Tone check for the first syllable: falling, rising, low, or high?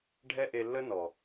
high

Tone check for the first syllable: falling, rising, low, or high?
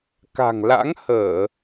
low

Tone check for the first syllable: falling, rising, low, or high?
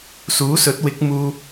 rising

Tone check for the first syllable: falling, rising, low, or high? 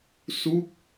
falling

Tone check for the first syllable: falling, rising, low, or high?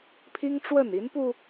high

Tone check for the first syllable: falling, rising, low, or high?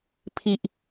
high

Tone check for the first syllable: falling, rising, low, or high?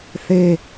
high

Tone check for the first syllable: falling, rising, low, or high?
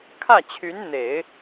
falling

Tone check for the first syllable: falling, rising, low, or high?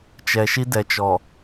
low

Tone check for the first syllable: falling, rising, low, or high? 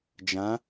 rising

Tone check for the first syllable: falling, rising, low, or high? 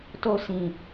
high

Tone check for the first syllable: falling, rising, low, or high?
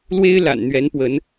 high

